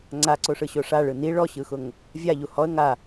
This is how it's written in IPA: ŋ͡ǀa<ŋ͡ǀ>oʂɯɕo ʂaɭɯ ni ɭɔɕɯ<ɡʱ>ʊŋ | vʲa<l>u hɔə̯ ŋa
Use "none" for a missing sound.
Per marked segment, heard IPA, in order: ǀ, x, ʎ

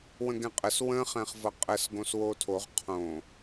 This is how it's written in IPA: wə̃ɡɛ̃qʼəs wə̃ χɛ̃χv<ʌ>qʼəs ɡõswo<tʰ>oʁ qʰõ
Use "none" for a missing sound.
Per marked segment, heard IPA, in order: ʌ, tʰ

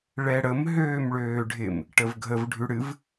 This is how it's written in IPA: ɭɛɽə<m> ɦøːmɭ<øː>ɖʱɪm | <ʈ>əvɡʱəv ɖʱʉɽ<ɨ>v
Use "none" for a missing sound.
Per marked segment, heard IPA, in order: m, øː, ʈ, ɨ

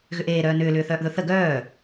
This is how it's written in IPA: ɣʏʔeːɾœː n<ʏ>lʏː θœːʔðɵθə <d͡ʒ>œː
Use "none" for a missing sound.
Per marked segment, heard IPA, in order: ʏː, ɡ

